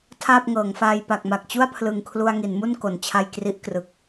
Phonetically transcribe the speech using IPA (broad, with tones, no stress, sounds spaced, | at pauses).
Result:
tʰ aː˥˩ p̚ ŋ ɤː˩˦ ŋ f aː˧ j p a˨˩ k̚ m a˨˩ k̚ t͡ɕ u˥˩ a̯ pʰ l ɯ˨˩ ŋ kʰ l u˧ a̯ ŋ i˩˦ n m u˥˩ n k o˩˦ n t͡ɕʰ a˧ j k r i˦˥ ʔ k r ɯ˨˩ k̚